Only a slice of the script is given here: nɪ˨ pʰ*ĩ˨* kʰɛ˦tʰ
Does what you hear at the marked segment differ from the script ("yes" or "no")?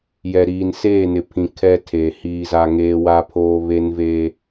no